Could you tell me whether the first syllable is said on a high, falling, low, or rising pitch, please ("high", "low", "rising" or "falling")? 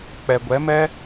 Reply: low